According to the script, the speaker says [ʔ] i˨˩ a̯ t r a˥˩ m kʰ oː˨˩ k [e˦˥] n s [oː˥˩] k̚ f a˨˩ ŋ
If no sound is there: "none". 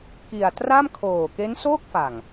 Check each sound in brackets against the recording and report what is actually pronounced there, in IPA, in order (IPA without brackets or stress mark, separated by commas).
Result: k, e˦˥, oː˥˩